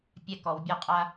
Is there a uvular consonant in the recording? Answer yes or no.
yes